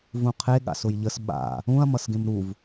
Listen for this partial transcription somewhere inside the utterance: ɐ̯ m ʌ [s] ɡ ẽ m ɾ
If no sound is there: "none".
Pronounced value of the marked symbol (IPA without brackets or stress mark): s